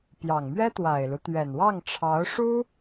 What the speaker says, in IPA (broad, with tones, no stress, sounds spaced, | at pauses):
p j ɑ˨˩ ŋ m ɥ ɛ˥ t̪ w a˨˩ ɪ̯ l u˦ t̪ ɥ ɛ˨˩ n w ɑ˥˩ ŋ ʈ͡ʂʰ ɑ˧˥ ʊ̯ ʂ u˥